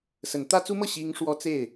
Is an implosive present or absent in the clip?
absent